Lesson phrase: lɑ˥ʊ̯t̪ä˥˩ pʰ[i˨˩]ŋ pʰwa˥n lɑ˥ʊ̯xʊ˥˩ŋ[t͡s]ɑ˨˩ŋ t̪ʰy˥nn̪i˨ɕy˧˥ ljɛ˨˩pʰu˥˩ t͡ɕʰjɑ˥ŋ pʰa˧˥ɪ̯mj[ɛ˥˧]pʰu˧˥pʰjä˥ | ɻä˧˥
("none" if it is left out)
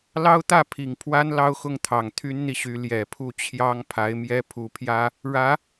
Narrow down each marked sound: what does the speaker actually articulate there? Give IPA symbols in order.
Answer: i˨˩, t̪ʰ, ɛ˥

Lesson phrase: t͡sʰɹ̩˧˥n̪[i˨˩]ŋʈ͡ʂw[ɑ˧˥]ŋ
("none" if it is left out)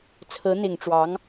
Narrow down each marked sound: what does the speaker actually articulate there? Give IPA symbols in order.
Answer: i˨˩, ɑ˧˥

